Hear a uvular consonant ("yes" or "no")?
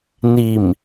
no